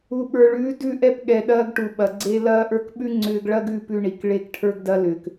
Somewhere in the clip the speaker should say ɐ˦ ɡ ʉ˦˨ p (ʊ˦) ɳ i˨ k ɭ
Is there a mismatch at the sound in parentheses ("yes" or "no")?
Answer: yes